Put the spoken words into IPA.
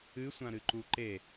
ɨsʷãɾɨ ǃuǃe

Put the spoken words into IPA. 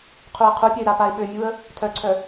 qʰuə̯qʰupʲɐɪ̯ ɾapaɪ̯ɓømʲuə̯ | tʰœǀʰœ

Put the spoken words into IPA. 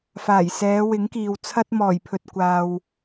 faː˨˩jsɛː˨˧ wɪ˨˥ŋkiː˨wt͡sʰɐ˥t̚ mɔː˨˩jpʰɵ˨t̚ kʷaː˨w

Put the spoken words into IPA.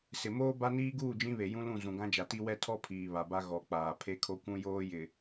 sɪ˨moː˦ ba˦niː˦ ɡuː˦˨d͡ʒĩ˦βe˨ jũ˦lũ˦˨ zũ˨ɡã˦d͡ʒa˨ti˦ wɛ˦ tʰɔ˦pʰiː˨ βa˨ba˦ ɣɔ˨ k͡paː˨ pʰe˦kʰo˦kʷũ˦joː˦ jɪ˨

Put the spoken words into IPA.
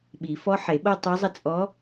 ɓi˨˩˦fɔ˧˥ ħe˨˩˦ɓo˥˧tˤu˧˥zˤə˥˧ t͡sʼɔ˧˥

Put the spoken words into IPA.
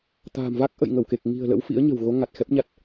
t̪a̤ː˨˩mva˦˥k̚ ʔə̰˧˨jŋə˧˩wke˨˩k̚ ŋi̤˨˩ə̯ lə̰˧˥wfḭ˧˥ə̯ɲə̤˨˩wɣo˨˦ ŋa˨˩t̚xɛ˦˥p̚ɲa˦˥t̚

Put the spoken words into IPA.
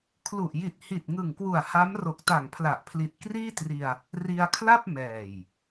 kʰlu˨˩ʔji˨˩t̚hi˨˩t̚ ŋɯ˨˩ŋkwu˨˩a̯ ha˦˥m ro˨˩k̚ta˨˩ŋpʰla˨˩ʔpʰli˨˩t̚ kriː˥˩tri˧a̯ | ri˧a̯kʰla˥˩p̚ mɛː˨˩j

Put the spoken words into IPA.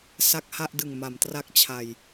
sa˥˩k̚ha˥˩ʔdɯ˨˩ŋ ma˩˦mtra˦˥k̚t͡ɕʰa˨˩j

